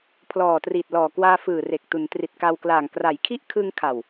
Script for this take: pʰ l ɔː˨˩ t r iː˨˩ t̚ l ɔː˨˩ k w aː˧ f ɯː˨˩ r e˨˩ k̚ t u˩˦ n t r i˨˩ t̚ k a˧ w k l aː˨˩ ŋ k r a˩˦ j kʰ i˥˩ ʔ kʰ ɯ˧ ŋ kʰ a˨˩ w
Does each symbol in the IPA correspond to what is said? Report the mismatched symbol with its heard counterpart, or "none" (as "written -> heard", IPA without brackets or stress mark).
none